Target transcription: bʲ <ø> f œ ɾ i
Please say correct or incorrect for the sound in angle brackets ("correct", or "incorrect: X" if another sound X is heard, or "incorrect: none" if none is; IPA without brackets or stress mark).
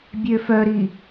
correct